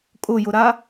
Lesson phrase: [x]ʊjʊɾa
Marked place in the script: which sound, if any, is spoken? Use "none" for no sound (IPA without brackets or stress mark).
kʼ